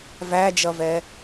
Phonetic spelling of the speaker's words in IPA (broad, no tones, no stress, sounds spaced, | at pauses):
v æ d͡ʒ ʌ v ɛ